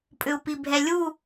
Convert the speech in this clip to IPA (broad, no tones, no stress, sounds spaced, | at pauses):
pʼ ʏ u̯ p i bʱ ɛ lʲ u